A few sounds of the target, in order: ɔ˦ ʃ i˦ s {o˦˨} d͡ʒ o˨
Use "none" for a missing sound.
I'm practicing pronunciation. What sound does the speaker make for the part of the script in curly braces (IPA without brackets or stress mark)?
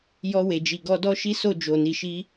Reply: o˦˨